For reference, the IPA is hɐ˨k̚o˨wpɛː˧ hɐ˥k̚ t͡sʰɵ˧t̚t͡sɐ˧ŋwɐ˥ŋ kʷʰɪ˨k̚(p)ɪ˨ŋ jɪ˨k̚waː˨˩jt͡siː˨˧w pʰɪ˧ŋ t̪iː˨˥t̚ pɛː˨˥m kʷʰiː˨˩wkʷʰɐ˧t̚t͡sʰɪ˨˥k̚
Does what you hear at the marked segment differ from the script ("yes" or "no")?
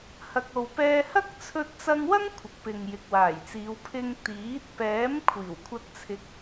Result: no